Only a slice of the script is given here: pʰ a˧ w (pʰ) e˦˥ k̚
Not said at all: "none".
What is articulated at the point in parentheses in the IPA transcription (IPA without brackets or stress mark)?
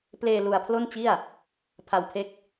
pʰ